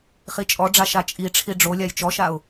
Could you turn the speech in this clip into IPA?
χ i t͡ʃʼ ɔ ɖ͡ʐ a ʃ a t͡ʃʼ i ʈ͡ʂʰ i ɖ͡ʐ o lʲ a j t͡ʃ ɔ ʃ a ʊ̯

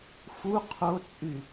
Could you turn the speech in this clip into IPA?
f u qʰ o t͡sʼ y

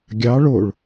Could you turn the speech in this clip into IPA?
ɡʲ ɑ ɭ o ɭ

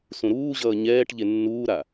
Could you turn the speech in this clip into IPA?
s ũ ɾ uː ʑ ʌː ɲ ɛː ʈ ʎ e nː uː ɾ a

